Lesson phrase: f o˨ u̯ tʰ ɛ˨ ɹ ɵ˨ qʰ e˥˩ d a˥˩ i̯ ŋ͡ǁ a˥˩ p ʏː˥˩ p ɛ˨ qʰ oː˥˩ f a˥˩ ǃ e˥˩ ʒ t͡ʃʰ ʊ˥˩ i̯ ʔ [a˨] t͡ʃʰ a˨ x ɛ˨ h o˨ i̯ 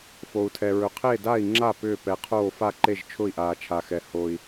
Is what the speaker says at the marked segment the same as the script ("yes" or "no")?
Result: no